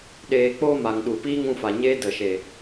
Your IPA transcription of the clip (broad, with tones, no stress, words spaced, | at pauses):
ɗeː˨k͡poː˧ ma˨ŋɗu˨piː˦ ŋũ˧fa˨ɲeː˦ də˨ʃe˨